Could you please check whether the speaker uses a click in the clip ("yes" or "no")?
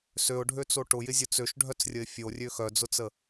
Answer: no